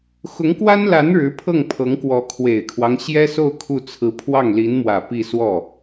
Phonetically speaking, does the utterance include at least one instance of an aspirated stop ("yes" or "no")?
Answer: yes